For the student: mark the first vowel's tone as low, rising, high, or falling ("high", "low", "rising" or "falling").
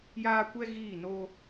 high